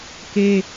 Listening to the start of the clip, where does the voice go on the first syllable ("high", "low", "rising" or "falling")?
high